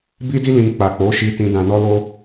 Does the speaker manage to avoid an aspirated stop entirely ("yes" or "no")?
yes